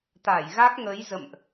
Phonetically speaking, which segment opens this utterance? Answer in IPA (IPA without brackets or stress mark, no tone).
t̪